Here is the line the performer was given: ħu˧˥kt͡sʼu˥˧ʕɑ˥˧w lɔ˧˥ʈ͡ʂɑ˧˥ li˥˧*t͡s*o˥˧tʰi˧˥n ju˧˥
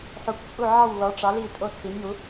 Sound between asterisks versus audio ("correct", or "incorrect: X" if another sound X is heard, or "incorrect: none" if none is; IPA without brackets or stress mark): incorrect: tʼ